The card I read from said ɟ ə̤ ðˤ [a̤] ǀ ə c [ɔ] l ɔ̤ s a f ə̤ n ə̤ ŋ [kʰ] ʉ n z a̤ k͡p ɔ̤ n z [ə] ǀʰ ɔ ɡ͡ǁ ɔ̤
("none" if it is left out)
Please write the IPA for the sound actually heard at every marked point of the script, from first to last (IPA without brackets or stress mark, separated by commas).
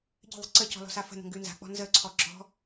ə̤, ɔ̤, ɡ, ə